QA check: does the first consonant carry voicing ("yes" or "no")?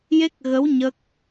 yes